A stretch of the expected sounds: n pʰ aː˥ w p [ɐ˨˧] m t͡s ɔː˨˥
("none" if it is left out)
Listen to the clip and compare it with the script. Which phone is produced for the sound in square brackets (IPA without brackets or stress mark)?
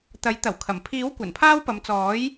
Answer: ɐ˨˧